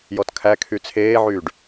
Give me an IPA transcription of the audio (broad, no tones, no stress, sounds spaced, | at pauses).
j ɔ t kʰ æ kʰ y t͡sʰ eː ʕ yː ɖ